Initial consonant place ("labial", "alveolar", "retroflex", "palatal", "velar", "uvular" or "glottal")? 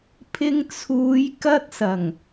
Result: labial